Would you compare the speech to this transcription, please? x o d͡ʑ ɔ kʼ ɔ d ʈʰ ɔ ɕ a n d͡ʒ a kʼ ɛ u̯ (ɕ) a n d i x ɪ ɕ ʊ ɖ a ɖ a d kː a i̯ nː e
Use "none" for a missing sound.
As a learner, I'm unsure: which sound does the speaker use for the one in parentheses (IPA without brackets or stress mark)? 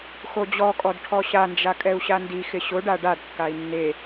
ɕ